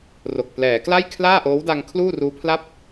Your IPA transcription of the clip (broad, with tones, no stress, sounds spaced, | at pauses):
r o˨˩ k̚ p l ɛː˩˦ k l a˥˩ j kʰ l aː˥˩ ʔ oː˦˥ w d a˧ ŋ kʰ l uː˥˩ r uː˦˥ pʰ l a˥˩ p̚